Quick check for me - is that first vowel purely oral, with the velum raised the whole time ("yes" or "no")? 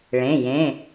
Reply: no